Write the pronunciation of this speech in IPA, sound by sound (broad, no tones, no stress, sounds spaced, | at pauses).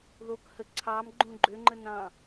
ð o k h ə ǀʰ ɑ m ɡ͡ǃ ũ ɡ͡ǃ ø ŋ͡ǃ ə n ɑ̃